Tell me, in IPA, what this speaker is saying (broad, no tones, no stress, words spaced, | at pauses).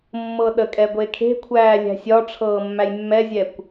mːɤɗəkʼɛ ɡʷekʰe̤kʷʰæː lʲæ̤sʲɒʈ͡ʂʰɤː mːæjmːɛzʲɛkʷ